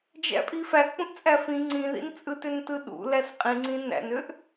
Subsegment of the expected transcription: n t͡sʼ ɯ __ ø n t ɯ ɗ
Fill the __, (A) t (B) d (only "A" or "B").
A